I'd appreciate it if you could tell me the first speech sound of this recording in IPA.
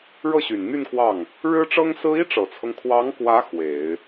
ɻ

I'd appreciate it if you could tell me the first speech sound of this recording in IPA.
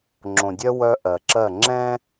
ŋ͡ǁ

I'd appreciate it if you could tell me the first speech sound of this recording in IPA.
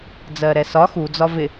d͡z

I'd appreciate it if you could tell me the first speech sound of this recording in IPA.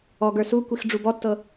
ɔ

